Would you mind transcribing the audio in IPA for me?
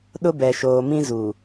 ɗ ʊ˦ b ɛ˨ ʃ oː˨ m ĩ˦ z u˨

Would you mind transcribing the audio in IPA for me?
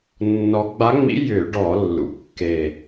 nː ɔ˧˥ ɡ͡b a˧˥ ŋ͡m ḭ˧˥ j ʏ˧˩˧ ɖ ɔ˧˩˧ lː ṵ˩˧ kː e˨˩

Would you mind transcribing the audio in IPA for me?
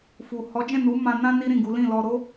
f u˨ h ɔ˨˦ d͡ʒ ɛ̃˦˨ n u˨˦ m ã˧ n ã˦ n i˦ ɾ ĩ˦˨ ɡ u˨˦ l ĩ˦˨ l ɔ˧ ɾ o˦

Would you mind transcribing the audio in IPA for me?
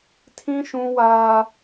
tʰ ĩ˦ ʃ ũ˦ w aː˦

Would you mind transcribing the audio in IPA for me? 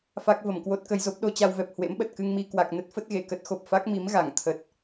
f a˦˥ k̚ v ə˧˩ m k w o˦˥ t̚ k ə˧ j z o˦˥ p̚ ɗ o˧ t͡ɕ a˧ w v ɛ˨˩ p̚ h w ḛ˧˥ m ɓ ə˨˩ t̚ k ɨ˧ ŋ m i˧ k w a˨˩ k̚ n ə˦˥ t̚ f ə˦˥ t̚ ɣ e˧˩ k ə˦˥ t̚ x o˨˩ p̚ f a˦˥ k̚ m i˨˦ m ɣ a˧˩ ŋ t̪ʰ ə˨˩ t̚

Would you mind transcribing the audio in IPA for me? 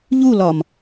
ʎ u l ɒ m

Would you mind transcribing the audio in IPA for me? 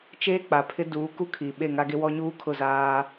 t͡ʃ eː˦ k͡p a˨ pʰ ɪ˦ d uː˨˦ k u˦ kʰ iː˨ ɓ e˦˨ ŋ a˦ ɡ e˦ w ɔ˦ ɲ uː˦ kʰ ʊ˦˨ z aː˦

